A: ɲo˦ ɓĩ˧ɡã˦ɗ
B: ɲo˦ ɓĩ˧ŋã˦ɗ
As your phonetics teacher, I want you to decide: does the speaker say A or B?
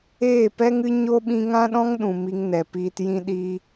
B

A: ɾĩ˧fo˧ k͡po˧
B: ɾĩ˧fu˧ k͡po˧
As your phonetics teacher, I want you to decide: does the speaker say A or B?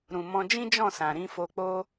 A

